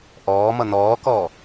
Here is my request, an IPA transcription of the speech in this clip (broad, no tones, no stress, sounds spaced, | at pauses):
ʔ ɔː m ʌ n ɔː k ɔː